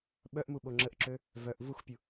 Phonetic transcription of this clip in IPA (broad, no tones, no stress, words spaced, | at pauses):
ɓœʔmu ɓoŋ͡ǁəʔǁø | vœʔ vuxpʲu